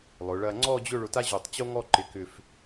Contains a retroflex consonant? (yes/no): yes